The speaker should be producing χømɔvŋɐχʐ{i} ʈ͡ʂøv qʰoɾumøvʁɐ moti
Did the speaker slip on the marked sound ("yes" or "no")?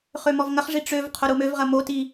no